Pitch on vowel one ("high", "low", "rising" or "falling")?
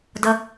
high